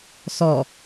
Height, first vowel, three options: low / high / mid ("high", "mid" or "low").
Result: mid